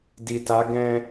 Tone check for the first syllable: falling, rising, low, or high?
low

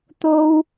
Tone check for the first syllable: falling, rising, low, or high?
high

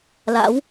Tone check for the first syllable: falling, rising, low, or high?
rising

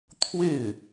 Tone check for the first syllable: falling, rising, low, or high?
falling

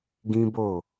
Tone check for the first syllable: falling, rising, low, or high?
high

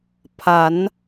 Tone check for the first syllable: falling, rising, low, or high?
rising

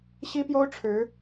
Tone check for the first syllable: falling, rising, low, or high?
high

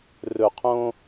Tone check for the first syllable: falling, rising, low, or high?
low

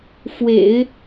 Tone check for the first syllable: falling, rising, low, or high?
low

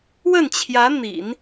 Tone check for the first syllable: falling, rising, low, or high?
falling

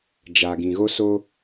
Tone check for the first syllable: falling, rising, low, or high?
low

